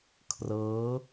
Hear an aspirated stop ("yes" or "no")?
yes